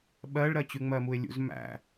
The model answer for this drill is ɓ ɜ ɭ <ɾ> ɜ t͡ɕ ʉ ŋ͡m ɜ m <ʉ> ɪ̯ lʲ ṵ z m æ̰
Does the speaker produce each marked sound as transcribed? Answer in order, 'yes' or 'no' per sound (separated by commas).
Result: yes, no